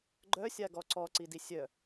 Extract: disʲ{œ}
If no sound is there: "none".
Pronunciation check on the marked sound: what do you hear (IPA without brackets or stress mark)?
œ